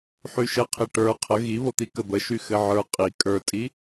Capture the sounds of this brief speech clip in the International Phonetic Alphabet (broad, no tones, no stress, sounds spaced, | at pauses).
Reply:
ħ y ʃ ə qʰ i ʈ ə˞ qʰ ə ɣ i β o t̪ i k ə b ə ʃ y x ɘ ʕ ə˞ qʼ i kʼ ə˞ tʼ i